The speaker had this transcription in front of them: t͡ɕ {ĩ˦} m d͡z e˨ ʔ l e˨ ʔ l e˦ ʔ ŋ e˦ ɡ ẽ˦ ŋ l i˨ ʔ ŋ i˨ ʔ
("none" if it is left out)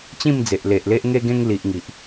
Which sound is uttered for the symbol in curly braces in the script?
ĩ˥˧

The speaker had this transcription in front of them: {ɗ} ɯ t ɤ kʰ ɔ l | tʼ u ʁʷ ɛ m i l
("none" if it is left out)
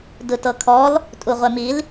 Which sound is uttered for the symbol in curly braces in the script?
d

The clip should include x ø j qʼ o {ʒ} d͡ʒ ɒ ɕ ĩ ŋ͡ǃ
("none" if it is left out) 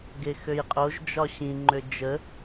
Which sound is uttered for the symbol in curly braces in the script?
ʒ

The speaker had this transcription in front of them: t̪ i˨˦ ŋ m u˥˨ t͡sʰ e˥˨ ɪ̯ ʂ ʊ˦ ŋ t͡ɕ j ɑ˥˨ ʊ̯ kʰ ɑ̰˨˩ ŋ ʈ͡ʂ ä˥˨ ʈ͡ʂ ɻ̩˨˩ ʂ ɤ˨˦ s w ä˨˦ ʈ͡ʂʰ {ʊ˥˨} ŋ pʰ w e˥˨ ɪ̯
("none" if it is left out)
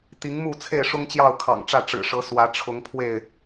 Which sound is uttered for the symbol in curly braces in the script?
ʊ˨˦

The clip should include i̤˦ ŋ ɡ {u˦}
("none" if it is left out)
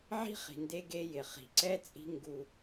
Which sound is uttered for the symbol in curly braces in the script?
u˦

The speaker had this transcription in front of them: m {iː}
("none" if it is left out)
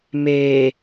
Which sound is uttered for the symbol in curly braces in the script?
eː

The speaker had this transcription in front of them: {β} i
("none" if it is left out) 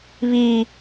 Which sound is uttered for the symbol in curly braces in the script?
β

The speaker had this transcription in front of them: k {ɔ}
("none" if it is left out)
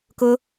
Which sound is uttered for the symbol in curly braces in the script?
ʊ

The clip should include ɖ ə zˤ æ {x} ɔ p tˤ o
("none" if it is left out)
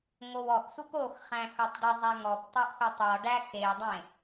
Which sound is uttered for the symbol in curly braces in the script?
ŋ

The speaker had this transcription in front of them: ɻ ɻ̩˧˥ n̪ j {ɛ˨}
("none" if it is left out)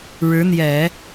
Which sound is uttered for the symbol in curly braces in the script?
ɛ˨˩˦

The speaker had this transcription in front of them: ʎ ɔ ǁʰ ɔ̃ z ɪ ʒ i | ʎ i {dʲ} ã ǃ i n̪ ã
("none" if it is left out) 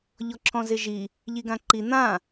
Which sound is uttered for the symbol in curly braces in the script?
ɡ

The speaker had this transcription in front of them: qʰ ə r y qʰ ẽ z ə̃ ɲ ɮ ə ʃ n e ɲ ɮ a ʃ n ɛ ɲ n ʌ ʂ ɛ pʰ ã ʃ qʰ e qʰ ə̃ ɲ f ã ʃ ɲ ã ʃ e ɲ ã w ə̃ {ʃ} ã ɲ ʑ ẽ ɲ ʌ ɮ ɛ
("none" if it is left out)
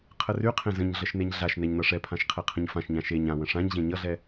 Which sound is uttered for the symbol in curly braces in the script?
ʂ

